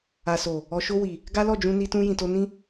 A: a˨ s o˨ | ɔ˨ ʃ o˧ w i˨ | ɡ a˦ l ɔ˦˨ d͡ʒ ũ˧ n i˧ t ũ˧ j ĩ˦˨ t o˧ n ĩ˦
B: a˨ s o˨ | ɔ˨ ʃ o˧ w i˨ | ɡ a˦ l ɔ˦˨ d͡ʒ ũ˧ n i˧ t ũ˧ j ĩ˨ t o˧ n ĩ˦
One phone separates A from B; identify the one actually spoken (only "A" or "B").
B